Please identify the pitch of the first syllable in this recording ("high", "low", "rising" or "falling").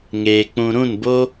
low